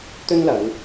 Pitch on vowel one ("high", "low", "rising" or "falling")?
high